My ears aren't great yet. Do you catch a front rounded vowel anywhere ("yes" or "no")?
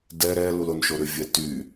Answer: yes